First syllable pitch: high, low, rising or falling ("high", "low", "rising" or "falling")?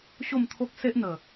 falling